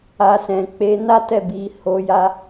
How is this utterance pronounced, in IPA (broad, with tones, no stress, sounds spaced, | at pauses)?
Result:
a˨ s ɛ̃˨ k͡p e˨˦ n a˦ t ɛ˦˨ b i˨˦ h o˧ j a˦